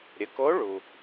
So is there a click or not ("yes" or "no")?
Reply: no